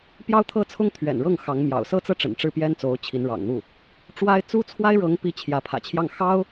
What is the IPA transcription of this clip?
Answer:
p j ɑ˥ ʊ̯ t̪ʰ ɤ˥˩ t͡sʰ ʊ˥ ŋ t̪ʰ ɥ ɛ̰˨˩ n ɻ ɤ˥˩ ŋ x ɑ˧˥ ŋ m j ɑ̰˨˩ ʊ̯ s ɤ˥ t͡s ɤ˥˩ ʈ͡ʂ ə̰˨˩ n ʈ͡ʂ ɻ̩˥˩ p j ɛ˥ n t͡s o˧˥ ʊ̯ t͡ɕʰ i˧˥ n ɻ ɑ̰˨˩ ŋ n̪ u˥˩ | ʈ͡ʂ w a˥ ɪ̯ t͡s u˥ t͡sʰ w a˥ ɪ̯ ɻ ɤ˧˥ ŋ p i˧˥ t͡ɕʰ j ä˧˥ pʰ ä̰˨˩ t͡ɕʰ j ɑ˥˩ ŋ x ɑ˥ ʊ̯

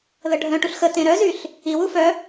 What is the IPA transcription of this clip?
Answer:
ð ə ɖʱ œ̃ ʈ u ɬ x ə t ẽ ɾ œ z y ɬ | i w u f œ

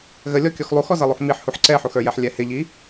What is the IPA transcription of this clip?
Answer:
ɣ ə lʲ ɔ kʲ ɔ x lˠ u x ɔ z ʌ lˠ u x m i ħ h u ħ ǀ ɛ ħ u x ə˞ j ɛ ħ lʲ ɛ h ɪ ʎ i

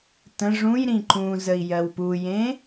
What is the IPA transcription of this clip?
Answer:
t ə̃ ʐ ũ j ɾ ĩ ǃ ũ z ə i̯ j ɜ w p u j ẽ

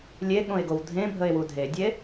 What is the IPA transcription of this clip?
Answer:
lʲ e ɠ õ e̯ ɡ o w dʱ ẽ bʱ ə e̯ w u dʱ e dʲ e

